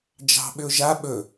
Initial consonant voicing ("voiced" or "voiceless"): voiced